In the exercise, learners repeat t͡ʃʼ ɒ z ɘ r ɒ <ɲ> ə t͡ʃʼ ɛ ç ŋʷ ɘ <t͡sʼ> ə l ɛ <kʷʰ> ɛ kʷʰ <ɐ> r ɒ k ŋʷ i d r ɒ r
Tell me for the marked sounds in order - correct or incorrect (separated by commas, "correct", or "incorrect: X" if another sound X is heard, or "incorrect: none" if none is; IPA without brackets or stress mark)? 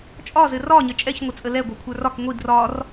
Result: correct, correct, incorrect: ɡʷ, incorrect: ə˞